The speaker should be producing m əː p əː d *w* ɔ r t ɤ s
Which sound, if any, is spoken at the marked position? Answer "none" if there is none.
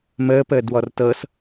w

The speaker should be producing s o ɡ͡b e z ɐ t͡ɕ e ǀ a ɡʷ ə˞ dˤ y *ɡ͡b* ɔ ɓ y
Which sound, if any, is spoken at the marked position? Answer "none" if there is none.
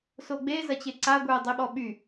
ɓ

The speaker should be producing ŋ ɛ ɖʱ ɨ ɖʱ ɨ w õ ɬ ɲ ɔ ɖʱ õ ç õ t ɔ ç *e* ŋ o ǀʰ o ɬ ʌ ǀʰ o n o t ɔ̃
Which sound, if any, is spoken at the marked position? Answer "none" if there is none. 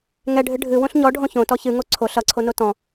ɨ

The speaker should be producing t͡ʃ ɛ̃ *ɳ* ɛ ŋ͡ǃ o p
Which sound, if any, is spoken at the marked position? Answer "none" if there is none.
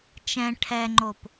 ʈʰ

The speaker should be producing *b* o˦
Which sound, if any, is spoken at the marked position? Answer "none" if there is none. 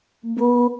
b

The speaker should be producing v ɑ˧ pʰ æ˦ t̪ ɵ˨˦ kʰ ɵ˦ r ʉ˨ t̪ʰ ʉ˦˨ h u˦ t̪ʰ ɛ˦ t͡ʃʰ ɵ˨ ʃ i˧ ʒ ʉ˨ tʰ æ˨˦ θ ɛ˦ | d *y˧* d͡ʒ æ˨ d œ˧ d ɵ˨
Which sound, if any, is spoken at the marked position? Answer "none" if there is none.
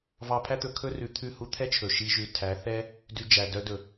y˧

